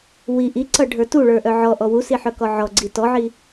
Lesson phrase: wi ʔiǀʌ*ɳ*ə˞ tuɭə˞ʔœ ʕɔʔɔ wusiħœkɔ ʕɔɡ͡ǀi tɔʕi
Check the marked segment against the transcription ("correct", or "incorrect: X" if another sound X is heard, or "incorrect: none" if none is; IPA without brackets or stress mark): incorrect: ɖʱ